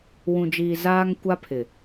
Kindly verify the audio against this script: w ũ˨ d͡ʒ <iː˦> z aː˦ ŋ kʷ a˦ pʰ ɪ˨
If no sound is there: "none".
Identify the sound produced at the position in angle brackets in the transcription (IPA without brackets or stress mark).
iː˨